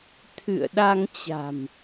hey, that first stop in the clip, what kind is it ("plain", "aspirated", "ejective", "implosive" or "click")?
aspirated